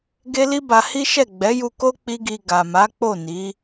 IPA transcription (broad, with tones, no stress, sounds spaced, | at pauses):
ɡ e˦ l i˦ b a˧ h i˦ ʃ ɛ˦˨ ɡ͡b ɛ˨˦ j u˧ k o˦ k͡p i˦ ɡ i˧ ɡ a˨ m a˨˦ k͡p o˦˨ n i˨˦